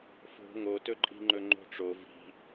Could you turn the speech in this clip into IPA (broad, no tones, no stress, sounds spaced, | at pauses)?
f o̤ ŋ o t ɵ ǃʼ i̤ ŋ͡ǃ ɵ ŋ͡ǃ o̤ ʈ͡ʂ o v i̤